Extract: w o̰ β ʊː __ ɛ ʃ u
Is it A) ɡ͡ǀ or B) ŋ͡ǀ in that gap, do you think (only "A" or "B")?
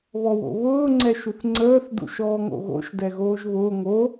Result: B